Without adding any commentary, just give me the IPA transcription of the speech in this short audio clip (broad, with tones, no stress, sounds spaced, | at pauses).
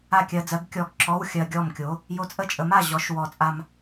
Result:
a˥˩ kʲ ɜ˧ d͡z ɜ˨˥ ɡ kʲ ɔ˧˩ ɡ ǁ ɔ˧˥˧ w xʲ ɜ˧ ɡʲ ɔ˥˩ m kʲ o˨˥ | j o˧ t͡sʼ ə˥˩ t͡ʃʼ ə˨˥ m a˥˩ ʑ ɔ˨˥ ʃ w ɔ˨˩˦ t͡sʼ a˧ m